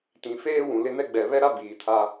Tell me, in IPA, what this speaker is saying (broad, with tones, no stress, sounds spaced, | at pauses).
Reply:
t ĩ˨ f eː˦ w ũ˨ l ɪ˦ n ɛ˦ ɡ͡b ɛ˨ β ɛ˦ ɾ a˦ b iː˨ tʰ a˦